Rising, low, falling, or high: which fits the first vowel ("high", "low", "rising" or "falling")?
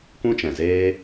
high